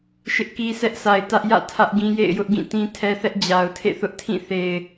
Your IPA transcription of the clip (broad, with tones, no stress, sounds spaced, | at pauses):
ʃ ɪ˦ ʔ k i˦ s ɛ˦ ʔ s a˨ ɪ̯ t ä˦ ʔ j ä̰˦˨ tʰ ä˦ ʔ ɡ ĩ˦ j ḛ˦˨ ɪ̯ j ʊ˦ ʔ ɡ ĩ˦˨ t ĩ˦ tʰ ɛ˦ θ ɛ˦ ʔ d͡ʑ a˨ ʊ̯ tʰ ḛ˦˨ θ ʊ˦ ʔ tʰ ĩ˦˨ θ e˨ ɪ̯